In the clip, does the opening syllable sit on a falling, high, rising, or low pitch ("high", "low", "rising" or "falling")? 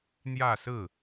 falling